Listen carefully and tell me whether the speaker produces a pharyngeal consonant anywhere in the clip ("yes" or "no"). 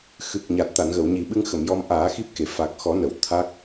no